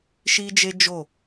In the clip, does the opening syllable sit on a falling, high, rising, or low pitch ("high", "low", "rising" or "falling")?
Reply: high